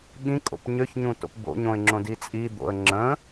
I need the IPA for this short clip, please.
ɠ ĩ kʼ o̰ p ɲ ø ç ɲ ũ t o̰ p b o̰ ɲ õ ɪ̯ ŋ͡ǁ õ d i t͡sʼ i d̪ o̰ ə̯ ŋ͡ǁ ə̃

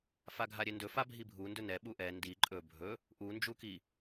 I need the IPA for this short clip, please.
f a ɡʱ a ɾʲ e n d ɵ f a bʱ i bʱ u n d ɵ n ɛ ɓ u ʔ ɛ n d i ǃʼ ɵ bʱ ɵ | ʔ u n d͡ʒ u k i

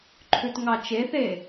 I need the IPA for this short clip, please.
ǃʰ ʉ t ŋ ɑ t͡ʃ e θ e

